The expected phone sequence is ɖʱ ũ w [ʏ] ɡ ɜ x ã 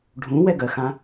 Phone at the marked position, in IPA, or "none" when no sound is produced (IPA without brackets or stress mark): ɛ